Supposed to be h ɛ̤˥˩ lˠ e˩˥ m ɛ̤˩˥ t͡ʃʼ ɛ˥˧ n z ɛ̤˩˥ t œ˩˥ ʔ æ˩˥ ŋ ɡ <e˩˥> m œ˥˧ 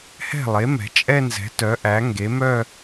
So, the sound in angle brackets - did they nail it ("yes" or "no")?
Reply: yes